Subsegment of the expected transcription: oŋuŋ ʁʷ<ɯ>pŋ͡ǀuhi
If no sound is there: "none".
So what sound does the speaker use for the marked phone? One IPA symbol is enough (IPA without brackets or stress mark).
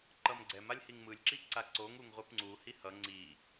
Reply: ɯ